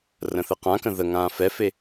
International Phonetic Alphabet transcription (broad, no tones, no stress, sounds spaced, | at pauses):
r ə̃ θ ɘ q ã k ə̃ ð ə ŋ ãː f ɛ f e